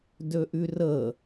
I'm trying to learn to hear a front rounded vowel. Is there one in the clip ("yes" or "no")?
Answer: yes